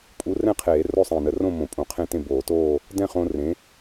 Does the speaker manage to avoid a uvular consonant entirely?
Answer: no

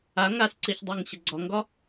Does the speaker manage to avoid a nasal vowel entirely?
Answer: yes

